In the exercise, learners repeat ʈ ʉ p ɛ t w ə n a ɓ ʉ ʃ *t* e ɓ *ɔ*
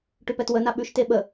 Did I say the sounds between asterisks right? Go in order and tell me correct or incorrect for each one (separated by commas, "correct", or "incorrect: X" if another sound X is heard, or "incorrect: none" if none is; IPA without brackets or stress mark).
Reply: correct, incorrect: ə